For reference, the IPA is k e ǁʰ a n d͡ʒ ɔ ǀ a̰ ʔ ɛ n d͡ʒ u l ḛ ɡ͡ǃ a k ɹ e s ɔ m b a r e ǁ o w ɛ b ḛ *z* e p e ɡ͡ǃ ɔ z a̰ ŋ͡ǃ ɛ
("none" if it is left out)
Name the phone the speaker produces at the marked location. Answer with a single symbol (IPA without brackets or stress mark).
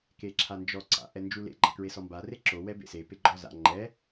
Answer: s